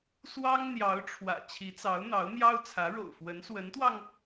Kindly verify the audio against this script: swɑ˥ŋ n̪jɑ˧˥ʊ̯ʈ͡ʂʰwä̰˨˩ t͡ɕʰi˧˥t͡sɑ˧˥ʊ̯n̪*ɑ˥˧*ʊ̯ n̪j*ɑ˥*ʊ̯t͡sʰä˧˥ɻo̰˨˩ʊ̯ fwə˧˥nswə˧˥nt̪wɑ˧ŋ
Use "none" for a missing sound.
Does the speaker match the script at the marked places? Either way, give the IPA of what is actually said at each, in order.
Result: ɑ˧˥, ɑ˥

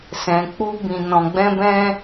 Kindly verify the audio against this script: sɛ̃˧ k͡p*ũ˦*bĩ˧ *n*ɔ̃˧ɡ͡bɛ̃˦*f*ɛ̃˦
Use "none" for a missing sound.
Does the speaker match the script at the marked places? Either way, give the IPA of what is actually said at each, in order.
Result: u˦, n, b

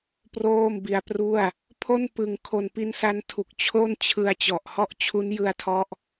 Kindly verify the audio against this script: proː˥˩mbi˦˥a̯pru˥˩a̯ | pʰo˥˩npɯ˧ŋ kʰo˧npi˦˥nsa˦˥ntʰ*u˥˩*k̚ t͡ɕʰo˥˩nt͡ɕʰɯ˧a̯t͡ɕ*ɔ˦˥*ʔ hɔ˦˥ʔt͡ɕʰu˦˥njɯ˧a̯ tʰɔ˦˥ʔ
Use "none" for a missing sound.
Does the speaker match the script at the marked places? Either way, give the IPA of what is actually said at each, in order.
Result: u˨˩, ɔ˨˩

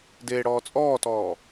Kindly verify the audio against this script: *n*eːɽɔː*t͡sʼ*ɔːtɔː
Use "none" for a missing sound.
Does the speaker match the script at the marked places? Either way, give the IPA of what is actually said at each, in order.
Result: d, t͡sʼ

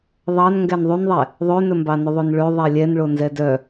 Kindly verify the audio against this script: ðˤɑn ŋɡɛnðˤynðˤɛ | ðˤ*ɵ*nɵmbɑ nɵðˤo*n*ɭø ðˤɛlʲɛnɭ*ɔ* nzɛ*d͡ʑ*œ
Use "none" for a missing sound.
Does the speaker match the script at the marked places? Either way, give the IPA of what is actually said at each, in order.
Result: ø, n, o, d

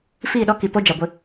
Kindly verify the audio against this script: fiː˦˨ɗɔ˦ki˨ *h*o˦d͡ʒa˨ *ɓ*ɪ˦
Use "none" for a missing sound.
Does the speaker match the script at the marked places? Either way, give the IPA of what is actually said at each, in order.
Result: p, ɡʷ

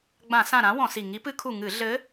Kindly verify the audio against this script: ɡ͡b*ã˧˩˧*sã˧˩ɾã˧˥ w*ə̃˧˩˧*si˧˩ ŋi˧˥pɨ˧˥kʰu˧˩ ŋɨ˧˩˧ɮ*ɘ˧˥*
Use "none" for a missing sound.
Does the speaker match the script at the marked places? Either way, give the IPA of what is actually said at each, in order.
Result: ã˧˩˧, ɔ̃˧˩˧, ɘ˧˥

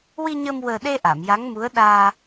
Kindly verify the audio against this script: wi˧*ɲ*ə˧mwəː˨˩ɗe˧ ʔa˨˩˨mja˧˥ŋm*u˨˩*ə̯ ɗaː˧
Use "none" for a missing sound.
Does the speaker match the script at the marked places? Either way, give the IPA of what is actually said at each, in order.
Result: ɲ, u˧˥

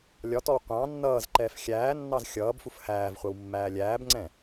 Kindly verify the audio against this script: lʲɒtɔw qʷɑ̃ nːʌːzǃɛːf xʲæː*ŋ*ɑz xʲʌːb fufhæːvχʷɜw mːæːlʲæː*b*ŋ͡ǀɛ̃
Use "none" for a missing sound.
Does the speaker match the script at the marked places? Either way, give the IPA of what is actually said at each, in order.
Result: nː, b

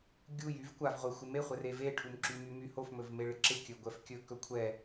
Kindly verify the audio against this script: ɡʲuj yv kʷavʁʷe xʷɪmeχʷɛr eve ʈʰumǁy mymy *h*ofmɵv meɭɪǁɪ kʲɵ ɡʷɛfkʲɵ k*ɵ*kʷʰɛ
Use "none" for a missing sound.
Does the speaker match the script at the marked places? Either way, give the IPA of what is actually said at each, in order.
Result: h, ɵ

